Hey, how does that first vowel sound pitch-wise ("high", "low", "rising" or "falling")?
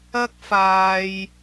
high